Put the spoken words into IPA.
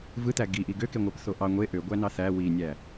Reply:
v ɯ t̪ æ ɡ i ʔ i ɡ ø k e ŋʷ æ p θ o ʔ ɑ ŋʷ e ʔ ø ɡʷ æ n ɑ θ æ w i nʲ æ

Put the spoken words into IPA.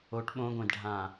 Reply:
o ʈ ɓ õ ɡʷ ẽ d ɖʱ ã

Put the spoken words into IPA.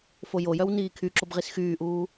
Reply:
f o j o j œ w n iː kʰ y ǁ o b ʁ i s x yː ʔ uː

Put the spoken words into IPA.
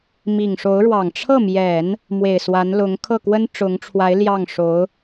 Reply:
m i˨˩ ŋ ʂ o˧˥ ʊ̯ ɻ w ɑ˨˩ ŋ ʈ͡ʂʰ ɤ˥˩ m j ɛ˨˩˦ n | m w e˨˩ ɪ̯ s w a˧˥ n l ʊ˧˥ ŋ kʰ ɤ˥˩ k w ə˥ n ʈ͡ʂ ʊ˧˥ ŋ ʈ͡ʂʰ w a˧˥ ɪ̯ l j ɑ˥˩ ŋ ʂ o˧˥ ʊ̯

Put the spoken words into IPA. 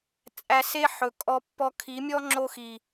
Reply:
t͡sʼ æ˧ s e˦ ħ ɵ˧ kʼ ɔ˦ pː ɔ˦ kʰ i˨˦ mʲ ɔ˦ ŋ͡ǁ o˦ x i˨

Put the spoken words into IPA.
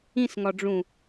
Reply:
ĩ s ŋ ɒ ɖ͡ʐ ũ

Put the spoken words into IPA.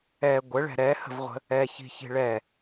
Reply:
ɛ ɡʷ ə ɭ ɛ̤ ɾ ɛ h ə̤ v ʁʷ ə̤ | ɛ ç i̤ ç i̤ ɭ ɛ

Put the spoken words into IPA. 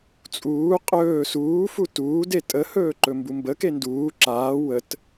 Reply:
t͡sʼ uː qʼ ɵː s uː f u t uː d e tʼ ə h ɵː ǃ ɵ m b u m b ə k e n d uː ǁ aː w ə t

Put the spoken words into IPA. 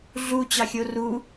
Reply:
ɮ u t͡ɕ ɑ xʲ o r u

